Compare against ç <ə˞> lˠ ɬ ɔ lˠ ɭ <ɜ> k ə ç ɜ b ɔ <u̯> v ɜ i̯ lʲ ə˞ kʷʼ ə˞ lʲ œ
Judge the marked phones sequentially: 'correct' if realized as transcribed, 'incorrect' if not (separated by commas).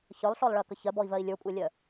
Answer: correct, correct, incorrect